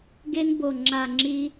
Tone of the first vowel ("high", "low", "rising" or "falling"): high